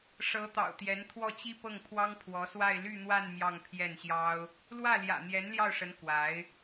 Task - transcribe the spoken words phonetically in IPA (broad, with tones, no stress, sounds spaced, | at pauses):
ʂ ɤ˧˥ t̪ ɑ̰˨˩ ʊ̯ t̪ j ɛ˧˥ n t̪ʰ w ɔ˥˩ t͡ɕ i˥ p ɤ˥˩ ŋ pʰ w ɑ˥ ŋ pʰ w ɔ˧˥ s w a˥˧ ɪ̯ l y˥˧ n̪ w a˥˧ n m j ɑ˥˧ ŋ pʰ j ɛ˥˩ n ɕ j ɑ˥ ʊ̯ | l w ä˥˩ l j ä̰˨˩ n̪ j ɛ˧˥ n l j ɑ˥˩ ʊ̯ ʂ ə˧˥ n k w a˧˥ ɪ̯